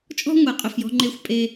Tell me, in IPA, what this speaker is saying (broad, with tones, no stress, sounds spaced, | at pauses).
t͡ʃʼ ɔ̤˦ ŋʷ ɛ˧ qʼ ɵ˧ f j ɔ̤˦ ŋ͡ǃ e˦˨ xʷ pʼ e˦